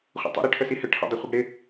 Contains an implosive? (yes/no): no